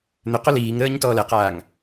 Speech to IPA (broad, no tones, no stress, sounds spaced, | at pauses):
n̪ ʏ q o l iː ŋ ɾ əː ɲ t ɔː l ɛ q aː ŋ